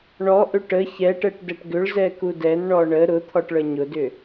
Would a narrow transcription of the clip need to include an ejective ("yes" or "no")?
no